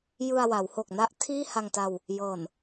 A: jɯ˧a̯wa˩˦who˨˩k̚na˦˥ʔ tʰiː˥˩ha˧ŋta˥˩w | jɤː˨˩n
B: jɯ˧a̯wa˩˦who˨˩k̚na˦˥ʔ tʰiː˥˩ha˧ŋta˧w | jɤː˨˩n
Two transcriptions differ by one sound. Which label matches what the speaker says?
B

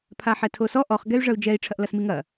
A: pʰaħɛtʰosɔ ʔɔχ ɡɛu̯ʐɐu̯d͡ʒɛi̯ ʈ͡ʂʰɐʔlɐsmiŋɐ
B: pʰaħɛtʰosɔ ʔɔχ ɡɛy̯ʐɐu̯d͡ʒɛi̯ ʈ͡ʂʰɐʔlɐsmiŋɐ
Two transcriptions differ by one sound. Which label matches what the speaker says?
B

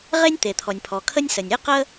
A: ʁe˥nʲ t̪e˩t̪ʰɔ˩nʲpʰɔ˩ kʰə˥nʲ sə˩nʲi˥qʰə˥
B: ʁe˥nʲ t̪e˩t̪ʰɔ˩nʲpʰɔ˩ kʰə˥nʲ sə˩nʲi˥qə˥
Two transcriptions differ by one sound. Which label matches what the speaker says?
B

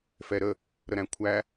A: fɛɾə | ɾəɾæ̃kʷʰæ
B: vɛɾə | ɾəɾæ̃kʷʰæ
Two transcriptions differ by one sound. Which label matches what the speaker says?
A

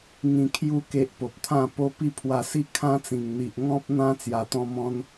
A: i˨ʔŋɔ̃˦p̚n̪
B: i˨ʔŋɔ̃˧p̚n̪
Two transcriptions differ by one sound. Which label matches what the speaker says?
A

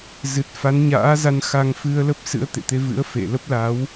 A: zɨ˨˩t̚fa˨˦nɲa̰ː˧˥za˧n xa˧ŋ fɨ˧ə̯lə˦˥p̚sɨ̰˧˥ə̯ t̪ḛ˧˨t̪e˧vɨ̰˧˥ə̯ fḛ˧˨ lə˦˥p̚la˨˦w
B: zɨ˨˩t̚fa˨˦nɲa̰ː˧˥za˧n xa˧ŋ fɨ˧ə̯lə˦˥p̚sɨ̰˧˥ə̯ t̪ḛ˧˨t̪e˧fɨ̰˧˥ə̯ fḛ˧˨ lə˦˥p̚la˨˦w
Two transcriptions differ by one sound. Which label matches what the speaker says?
A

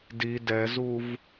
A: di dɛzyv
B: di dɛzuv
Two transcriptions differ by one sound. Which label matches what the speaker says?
B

